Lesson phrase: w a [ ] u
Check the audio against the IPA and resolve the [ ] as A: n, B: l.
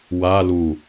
B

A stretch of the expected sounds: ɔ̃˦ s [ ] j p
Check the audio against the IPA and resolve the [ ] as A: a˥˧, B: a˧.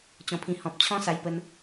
B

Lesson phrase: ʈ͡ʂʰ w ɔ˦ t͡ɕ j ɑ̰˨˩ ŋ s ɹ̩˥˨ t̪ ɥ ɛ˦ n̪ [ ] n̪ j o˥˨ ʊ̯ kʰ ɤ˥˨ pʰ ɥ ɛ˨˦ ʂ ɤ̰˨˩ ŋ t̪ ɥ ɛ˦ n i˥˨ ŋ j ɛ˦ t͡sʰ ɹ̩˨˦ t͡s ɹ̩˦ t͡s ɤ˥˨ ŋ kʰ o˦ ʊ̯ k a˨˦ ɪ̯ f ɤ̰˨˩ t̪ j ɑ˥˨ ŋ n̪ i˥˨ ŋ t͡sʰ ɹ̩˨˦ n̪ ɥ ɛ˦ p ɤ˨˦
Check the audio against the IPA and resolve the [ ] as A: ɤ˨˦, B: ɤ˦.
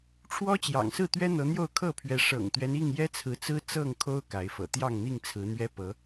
A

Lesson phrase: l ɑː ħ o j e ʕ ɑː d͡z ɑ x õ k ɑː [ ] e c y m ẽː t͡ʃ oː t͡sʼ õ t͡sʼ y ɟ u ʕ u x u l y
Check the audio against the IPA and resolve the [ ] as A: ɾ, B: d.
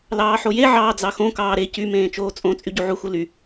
A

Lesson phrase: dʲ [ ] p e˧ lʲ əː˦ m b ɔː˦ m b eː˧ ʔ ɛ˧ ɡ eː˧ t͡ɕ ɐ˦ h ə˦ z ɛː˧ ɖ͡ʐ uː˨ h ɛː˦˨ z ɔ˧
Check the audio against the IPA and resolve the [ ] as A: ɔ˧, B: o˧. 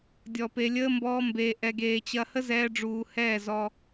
A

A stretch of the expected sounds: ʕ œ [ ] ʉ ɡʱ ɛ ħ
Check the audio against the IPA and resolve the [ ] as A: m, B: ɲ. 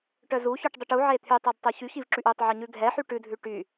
B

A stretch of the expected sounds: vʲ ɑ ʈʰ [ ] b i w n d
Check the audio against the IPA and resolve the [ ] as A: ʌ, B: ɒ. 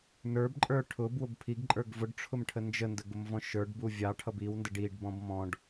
A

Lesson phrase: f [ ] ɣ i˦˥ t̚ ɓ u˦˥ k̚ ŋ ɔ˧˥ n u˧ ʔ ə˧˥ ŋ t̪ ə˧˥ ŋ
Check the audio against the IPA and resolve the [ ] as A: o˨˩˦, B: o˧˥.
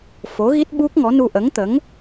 B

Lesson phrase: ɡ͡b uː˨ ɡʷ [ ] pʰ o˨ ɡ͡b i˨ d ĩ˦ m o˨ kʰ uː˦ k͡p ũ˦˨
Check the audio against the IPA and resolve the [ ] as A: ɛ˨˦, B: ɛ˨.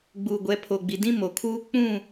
A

